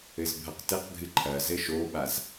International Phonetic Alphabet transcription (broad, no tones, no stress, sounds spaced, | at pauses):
ɘ z bʱ ɐ q t ɘ q ɡʱ ɨ ǃʰ ɐ z ɘ ʃ o ɓ a z